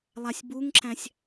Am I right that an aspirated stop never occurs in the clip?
yes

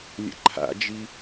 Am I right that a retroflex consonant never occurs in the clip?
yes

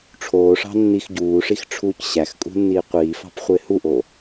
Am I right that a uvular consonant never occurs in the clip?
no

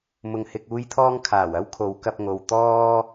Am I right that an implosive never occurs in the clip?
yes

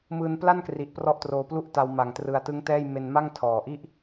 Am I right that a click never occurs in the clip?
yes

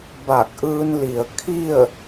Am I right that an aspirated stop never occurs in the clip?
no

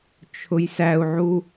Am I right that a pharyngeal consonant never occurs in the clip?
no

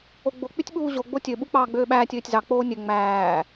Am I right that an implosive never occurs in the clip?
no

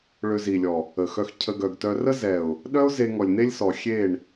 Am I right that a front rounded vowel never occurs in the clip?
no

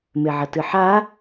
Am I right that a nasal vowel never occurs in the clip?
yes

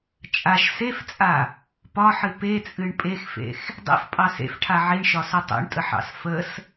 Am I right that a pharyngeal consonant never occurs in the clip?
no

